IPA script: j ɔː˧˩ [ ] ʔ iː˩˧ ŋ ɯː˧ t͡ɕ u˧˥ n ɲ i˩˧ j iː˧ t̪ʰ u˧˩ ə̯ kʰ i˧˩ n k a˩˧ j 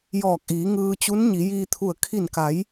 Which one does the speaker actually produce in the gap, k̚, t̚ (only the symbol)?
k̚